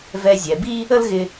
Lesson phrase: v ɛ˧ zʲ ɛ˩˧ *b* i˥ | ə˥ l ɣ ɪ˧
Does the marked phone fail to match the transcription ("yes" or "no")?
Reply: no